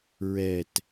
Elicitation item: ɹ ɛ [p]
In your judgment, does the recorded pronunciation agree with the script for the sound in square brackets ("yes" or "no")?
no